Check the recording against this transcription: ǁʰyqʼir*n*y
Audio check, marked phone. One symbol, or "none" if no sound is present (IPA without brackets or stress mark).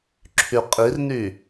n